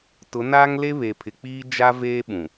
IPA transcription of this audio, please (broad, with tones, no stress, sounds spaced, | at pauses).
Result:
t ʊ˨˦ n aː˦ ŋ l e˦ β eː˨ pʰ ɪ˨ k͡p iː˦ d͡ʒ a˦ v eː˦ ɓ ũ˨